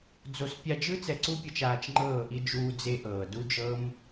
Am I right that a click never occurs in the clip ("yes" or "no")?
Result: no